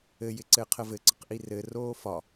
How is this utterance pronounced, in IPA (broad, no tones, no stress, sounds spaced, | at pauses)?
ɘ j ɪ ǀ ɘː qʰ ə v ɘ ǀ ə q ʔ i r ɘ r oː f ɒ